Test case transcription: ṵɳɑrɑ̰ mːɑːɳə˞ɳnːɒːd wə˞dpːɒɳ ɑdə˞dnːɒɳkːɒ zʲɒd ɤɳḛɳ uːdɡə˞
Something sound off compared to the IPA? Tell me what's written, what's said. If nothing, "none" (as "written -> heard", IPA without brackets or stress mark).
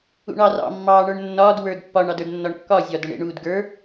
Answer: none